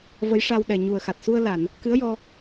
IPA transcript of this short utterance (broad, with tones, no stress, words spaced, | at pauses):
və˧˥jʂa˧w ɗɛ˨˩ɲu˨˩ə̯xa˨˩t̚ su˧ə̯la˨˩˨n | kɨ˧˥ə̯jɔ˧